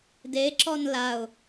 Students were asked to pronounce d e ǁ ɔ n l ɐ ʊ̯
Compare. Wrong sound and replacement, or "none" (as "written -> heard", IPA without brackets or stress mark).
ɐ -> a